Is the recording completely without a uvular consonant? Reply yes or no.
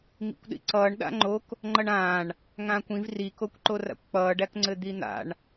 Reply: yes